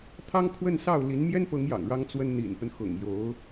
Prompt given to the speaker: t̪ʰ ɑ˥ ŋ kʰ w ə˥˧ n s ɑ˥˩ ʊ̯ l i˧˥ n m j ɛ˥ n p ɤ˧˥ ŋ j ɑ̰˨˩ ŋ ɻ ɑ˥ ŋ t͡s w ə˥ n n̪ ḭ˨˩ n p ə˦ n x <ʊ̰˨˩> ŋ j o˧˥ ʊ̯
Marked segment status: correct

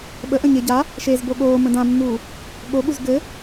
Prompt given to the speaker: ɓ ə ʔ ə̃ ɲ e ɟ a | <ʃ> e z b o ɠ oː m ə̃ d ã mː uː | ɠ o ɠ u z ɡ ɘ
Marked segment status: correct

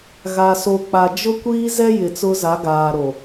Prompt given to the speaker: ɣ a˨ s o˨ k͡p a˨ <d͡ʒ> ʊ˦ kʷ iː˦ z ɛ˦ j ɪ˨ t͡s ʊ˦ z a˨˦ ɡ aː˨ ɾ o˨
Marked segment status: correct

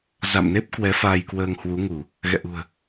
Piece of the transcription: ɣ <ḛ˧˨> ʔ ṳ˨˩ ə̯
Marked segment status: incorrect: ɛ̰˧˨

